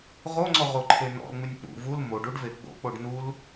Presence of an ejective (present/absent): absent